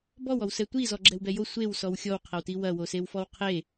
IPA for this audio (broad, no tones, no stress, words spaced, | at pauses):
bɔwɔwsɛ tʷi zɔɡ͡ǁɛwbɛjo sʷew sɔwxʲɔwqʰɐwti wɐwosewfɔw qʰe